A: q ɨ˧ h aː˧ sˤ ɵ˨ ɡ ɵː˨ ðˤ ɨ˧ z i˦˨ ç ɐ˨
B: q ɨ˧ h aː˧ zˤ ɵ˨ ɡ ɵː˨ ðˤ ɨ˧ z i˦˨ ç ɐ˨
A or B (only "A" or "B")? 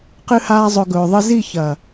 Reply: B